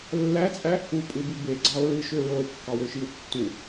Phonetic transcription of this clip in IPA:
lː æ t͡sʼ æ | u pʼ ɯ b i b e ɡ͡ǀ ɑ o̯ ɹ ɯ ʃ ø ɹ o e̯ kː ɑ w ø ʃ i w tː u

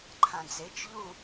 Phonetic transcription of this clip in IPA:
ǃʰ ã d͡z e t͡ʃ ʎ u

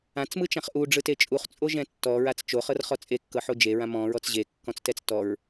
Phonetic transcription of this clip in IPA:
ã t͡s m ɯ t͡ʃ ã χ ʔ u ɖ͡ʐ ɯ t e t͡ʃʼ u χ t͡sʼ o ʒ ɛ̃ tː ɔ ɹ a t͡s t͡ʃ o χ ɤ r χ ɔ t͡sʼ e kː ɤ ħ o d͡ʒ e ɹ ã m ɔ̃ ɹ ɔ t͡s ʑ e kː ɔ̃ t͡s t ɛ t͡s t ɔ ɹ

